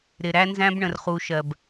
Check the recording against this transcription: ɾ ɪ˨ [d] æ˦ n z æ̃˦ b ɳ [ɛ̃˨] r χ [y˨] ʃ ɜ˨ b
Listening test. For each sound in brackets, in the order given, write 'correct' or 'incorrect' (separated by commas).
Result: incorrect, incorrect, incorrect